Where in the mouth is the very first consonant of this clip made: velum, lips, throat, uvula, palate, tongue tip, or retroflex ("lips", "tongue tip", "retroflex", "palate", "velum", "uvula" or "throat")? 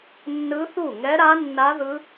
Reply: tongue tip